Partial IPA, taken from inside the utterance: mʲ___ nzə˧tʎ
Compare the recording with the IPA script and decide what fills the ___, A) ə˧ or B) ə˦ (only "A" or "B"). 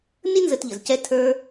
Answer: B